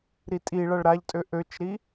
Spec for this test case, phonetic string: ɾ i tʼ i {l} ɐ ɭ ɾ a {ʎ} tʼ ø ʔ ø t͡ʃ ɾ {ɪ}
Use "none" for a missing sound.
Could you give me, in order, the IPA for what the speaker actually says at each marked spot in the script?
ɭ, ʎ, i

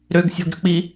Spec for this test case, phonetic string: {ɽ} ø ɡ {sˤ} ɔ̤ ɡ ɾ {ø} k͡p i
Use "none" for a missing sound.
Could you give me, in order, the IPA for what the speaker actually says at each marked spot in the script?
ɾ, sʲ, ø

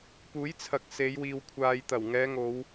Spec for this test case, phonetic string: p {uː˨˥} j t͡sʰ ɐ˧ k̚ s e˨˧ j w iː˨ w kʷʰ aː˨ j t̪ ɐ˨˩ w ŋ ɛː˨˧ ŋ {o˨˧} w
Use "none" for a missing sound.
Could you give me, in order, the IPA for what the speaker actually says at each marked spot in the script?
uː˨˥, o˨˧

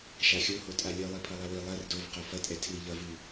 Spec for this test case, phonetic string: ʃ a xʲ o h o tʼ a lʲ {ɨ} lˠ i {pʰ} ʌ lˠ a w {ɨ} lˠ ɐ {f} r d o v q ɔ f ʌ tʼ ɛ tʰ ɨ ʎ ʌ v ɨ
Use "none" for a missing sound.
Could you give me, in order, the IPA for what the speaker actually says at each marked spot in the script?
ɨ, pʰ, i, none

